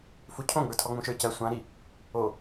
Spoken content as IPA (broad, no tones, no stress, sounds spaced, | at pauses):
f u cʰ õ ɡ͡b ə˞ tʰ ɔ ŋ͡m ũ ʃ ə˞ c ɜ sʷ ã ɾ i | o